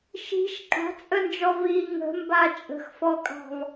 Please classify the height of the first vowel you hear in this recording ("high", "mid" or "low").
high